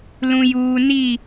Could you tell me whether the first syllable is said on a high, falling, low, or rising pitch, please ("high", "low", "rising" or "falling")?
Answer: low